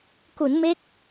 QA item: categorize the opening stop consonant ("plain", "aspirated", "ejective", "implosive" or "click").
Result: plain